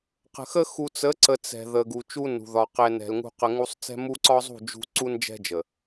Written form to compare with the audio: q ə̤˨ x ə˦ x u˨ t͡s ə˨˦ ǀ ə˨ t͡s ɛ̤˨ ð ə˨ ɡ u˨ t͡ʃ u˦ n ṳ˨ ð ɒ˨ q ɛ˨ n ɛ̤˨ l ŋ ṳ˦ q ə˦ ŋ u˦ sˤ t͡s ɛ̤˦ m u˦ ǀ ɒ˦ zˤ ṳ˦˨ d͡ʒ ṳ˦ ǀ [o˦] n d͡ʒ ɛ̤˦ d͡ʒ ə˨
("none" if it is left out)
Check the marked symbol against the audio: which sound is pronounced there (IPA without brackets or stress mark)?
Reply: u˦